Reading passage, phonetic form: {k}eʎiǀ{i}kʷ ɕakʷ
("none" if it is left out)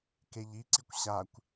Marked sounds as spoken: k, i

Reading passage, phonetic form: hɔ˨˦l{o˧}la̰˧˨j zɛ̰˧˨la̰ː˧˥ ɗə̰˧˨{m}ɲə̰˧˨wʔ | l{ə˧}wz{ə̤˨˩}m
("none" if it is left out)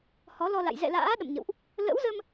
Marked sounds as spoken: ɔ˧, m, ə̰˧˥, ə˧

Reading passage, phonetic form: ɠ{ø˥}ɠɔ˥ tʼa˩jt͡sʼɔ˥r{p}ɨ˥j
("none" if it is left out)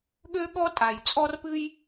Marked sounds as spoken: ø˥, p

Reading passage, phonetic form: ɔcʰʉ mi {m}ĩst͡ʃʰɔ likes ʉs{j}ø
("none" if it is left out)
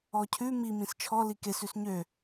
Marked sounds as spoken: m, ɲ

